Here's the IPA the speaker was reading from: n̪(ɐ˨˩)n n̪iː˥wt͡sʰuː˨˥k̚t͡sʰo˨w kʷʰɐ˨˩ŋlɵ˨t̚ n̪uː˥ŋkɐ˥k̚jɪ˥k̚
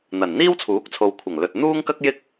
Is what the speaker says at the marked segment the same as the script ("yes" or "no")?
yes